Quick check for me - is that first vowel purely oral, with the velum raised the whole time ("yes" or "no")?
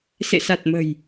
yes